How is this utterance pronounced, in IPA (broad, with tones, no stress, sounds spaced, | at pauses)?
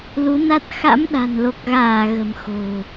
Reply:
l u˨˦ n a˦˥ t̚ x a̰˧˥ m ɗ a̤˨˩ n l o˨˩ k̚ ɣ aː˧˩ ɣ ə̤˨˩ m x o̤˨˩